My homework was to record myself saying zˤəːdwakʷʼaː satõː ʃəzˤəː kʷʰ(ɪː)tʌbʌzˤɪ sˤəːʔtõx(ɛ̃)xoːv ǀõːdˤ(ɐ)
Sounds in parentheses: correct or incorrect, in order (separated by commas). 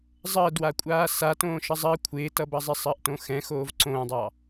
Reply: correct, correct, incorrect